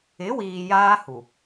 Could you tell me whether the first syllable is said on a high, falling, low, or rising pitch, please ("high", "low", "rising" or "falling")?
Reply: rising